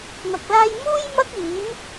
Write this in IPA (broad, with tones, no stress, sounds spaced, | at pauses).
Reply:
n̪ ɐ˧ k̚ l aː˥ j m uː˥ j m ɐ˥ k̚ iː˨˥ m